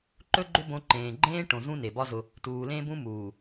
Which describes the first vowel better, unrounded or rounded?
rounded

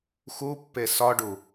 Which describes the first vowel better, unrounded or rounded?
rounded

